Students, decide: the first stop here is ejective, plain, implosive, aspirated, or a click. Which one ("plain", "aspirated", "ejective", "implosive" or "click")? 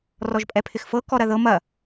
ejective